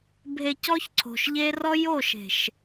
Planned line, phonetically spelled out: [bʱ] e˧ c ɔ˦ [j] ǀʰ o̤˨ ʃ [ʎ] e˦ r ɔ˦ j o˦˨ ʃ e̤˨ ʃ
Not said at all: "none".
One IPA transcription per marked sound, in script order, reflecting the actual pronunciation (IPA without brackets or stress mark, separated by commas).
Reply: bʱ, ç, ʎ